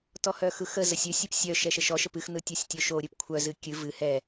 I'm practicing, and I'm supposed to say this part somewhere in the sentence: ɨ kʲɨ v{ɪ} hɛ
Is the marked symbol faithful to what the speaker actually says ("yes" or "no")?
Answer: no